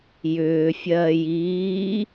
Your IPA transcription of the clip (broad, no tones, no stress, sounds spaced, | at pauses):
j ʏː fʲ ɜː j iː